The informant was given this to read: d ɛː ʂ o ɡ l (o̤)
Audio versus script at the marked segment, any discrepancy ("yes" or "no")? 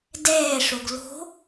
no